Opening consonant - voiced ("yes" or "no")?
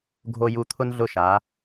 yes